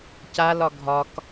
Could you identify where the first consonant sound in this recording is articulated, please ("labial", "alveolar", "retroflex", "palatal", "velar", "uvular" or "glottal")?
palatal